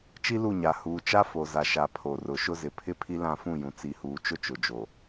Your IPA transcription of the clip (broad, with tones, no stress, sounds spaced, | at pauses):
t͡ʃ i˦ l u˦˨ ɲ a˨ h uː˨ t͡ʃ a˦ f o˨ z a˨ ʃ a˨ pʰ o˨ r ʊ˨ ʃ ʊ˦ z ɪ˨ pʰ ɪ˦ pʰ i˦ l ã˦˨ f ũ˦˨ j ũ˨ t͡s i˨ h uː˨ t͡ʃ ʊ˦ t͡ʃ ʊ˨ d͡ʒ o˨